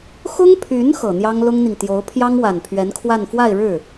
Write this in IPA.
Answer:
x ʊ˥ ŋ pʰ y˧˥ n x ɤ˨˩ n̪ j ɑ˥ ŋ l ʊ˥ ŋ n̪ i˨ ŋ t̪ j o˧˥ ʊ̯ pʰ j ɑ˥ ŋ w a˨˩ n pʰ ɥ ɛ˧˥ n kʰ w a˥˧ n f w a˥˧ ɪ̯ ɻ ɻ̩˥˩

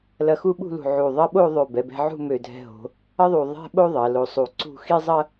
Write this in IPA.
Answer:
l ɐ˧ x u˥˧ ɓ ṳ˥˧ l ṳ˧˩ ʕ u˧˩ ðˤ ɐ˥ ɓ o˥˧ ðˤ ø˧˩ b ɛ˩˧ b ɛ̤˧ ʕ ṳ˥˧ m ø˧˩ dʱ ɛ̤˧ ɦ o̤˩˧ | ɐ˥ ðˤ u˧˩ ðˤ ɛ̤˥ ɓ o˥ ðˤ ɐ˩˧ l o˧ sˤ u˧˩ ǀ ṳ˥˧ x i˥ zˤ ɐ˥

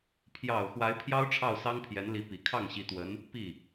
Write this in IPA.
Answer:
pʰ j ɑ˨˩ ʊ̯ x w a˧˥ ɪ̯ pʰ j ɑ˥ ʊ̯ ʈ͡ʂʰ ɑ˥˩ ʊ̯ s ɑ˥ ŋ pʰ j ɛ˧˥ n l i˧˥ p i˨˩ kʰ ɑ˥˩ ŋ ɕ i˧˥ t̪ w ə˧˥ n | p i˥˩

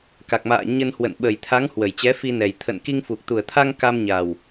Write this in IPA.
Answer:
k a˨˩ k̚ m a̰ː˧˨ ɲ ə˧ n h w ə̰˧˨ n ɓ ə˨˩ j t̪ʰ a˨˦ ŋ h w ə˧˩ j t͡ɕ ɛ˨˦ f i˧ n ɛ˨˩ j t̪ʰ ə̰˧˨ n k i˧ ŋ f u˨˩ k̚ t̪ u˨˩ ə̯ t̪ʰ a˧ ŋ k a˧ m ɲ a˨˩ w

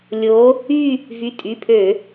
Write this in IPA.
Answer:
lʲ o˧˥ | y˥˧ | v y˩˧˩ tʼ y˩˧˩ pʰ ø˧˩˧

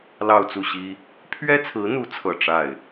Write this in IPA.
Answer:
l ɑ˥˧ ʊ̯ t͡s u˥˩ ɕ i˥ | pʰ ɥ ɛ˥ t͡sʰ ɹ̩˧˥ n̪ u˧˥ t͡sʰ ɤ˨˩ ʈ͡ʂ a˥˩ ɪ̯

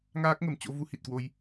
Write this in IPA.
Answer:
ŋ aː˦˥ k̚ ŋ ə˨˩ m t͡ɕ o̰˧˥ v u˨˦ h i˨˩ t̚ k w o˧ j

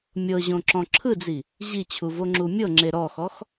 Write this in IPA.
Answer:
mʲ ɤ ʑ õ ǁ ɔ̃ ǁʰ ɯ d͡z i | ʑ i t͡ɕʰ u v o ŋ͡ǁ u mʲ ɤ ŋ͡ǁ e ɾ ɔ x ɔ x

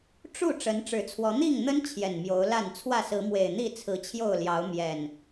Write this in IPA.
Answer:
ʈ͡ʂ u˥˨ ʈ͡ʂ ə˨˦ n ʈ͡ʂ ɻ̩˨˦ t͡sʰ w ɔ˨˦ n̪ i˥˨ ŋ n̪ ə˦ n t͡ɕʰ j ɛ˨˩ n m j o˨˦ ʊ̯ l a˥˨ n t͡sʰ w ä˥˨ s ɹ̩˨˦ m w e˨˩ ɪ̯ n̪ i˥˨ t͡sʰ ɹ̩˨˦ t͡ɕʰ j o˥˨ ʊ̯ l j ɑ˨˦ ʊ̯ m j ɛ˨˩ n

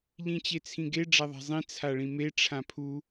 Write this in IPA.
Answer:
ʎ ĩ t͡ɕ e t͡sʰ ĩ ɡ e ɖ͡ʐ a ðˤ a̤ zˤ ĩ t͡sʰ a ɭ ĩ m e ʈ͡ʂʰ ã pʰ u

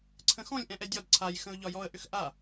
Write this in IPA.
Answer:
ǀʰ ə̃ x ɔ̃ lʲ ʔ ɛ̃ ʔ ɛ dʲ ɒ d ǀʰ a j x ə̃ ʊ̯ ʎ ɒ j ɔ ə̯ ʔ ʏ x ʔ a

